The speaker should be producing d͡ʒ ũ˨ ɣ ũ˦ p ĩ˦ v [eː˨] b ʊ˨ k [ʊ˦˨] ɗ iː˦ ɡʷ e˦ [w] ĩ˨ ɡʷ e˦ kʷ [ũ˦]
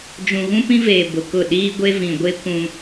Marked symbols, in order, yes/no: yes, yes, no, yes

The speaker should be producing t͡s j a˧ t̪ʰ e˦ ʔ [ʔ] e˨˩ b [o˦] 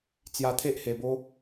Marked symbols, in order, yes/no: no, yes

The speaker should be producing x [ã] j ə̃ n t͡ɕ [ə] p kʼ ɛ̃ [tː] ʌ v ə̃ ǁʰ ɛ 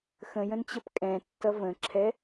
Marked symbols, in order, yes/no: no, yes, yes

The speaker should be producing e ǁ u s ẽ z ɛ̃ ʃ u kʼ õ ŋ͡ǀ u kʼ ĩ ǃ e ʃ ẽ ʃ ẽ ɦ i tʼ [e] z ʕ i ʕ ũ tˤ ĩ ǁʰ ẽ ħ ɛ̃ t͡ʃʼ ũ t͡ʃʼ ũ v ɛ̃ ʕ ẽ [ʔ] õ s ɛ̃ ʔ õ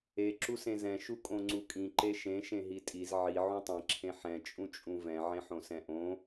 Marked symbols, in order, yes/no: no, no

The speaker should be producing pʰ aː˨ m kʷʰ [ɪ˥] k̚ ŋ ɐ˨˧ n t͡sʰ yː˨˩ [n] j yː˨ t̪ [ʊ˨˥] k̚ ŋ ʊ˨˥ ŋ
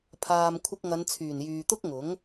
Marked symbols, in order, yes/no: no, yes, no

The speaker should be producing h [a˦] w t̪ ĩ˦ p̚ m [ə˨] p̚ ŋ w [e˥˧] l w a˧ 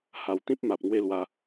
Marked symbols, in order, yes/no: no, no, yes

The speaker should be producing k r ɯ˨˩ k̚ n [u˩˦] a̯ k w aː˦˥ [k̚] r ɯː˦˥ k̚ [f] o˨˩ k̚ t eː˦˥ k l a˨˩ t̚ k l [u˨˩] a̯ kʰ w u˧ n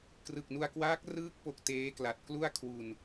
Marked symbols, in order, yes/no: no, yes, no, no

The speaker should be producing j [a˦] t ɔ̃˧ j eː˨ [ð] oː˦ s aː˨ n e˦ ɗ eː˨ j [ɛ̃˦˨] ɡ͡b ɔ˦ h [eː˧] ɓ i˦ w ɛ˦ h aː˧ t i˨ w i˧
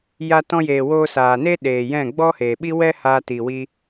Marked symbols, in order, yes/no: no, no, yes, no

